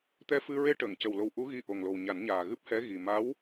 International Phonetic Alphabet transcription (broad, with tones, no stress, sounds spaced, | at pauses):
t̪ ɛ˧ f ɨ˧ ɹ e˧ ʈ əː˨˩˨ ŋ c ə˨˩ w l o˨˩ w ʔ u˧˥ ɣ i˧ ʔ o˨˩ ŋ l o˨˩ w ɲ a˨˩˦ n ɲ aː˨˩ ɣ ɨ˦˥ p̚ h ɛ˧˥ ɣ i˨˩ m a˧˥ w